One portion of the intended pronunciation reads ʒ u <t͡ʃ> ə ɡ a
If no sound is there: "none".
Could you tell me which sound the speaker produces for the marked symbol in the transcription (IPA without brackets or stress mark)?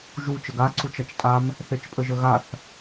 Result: t͡ʃ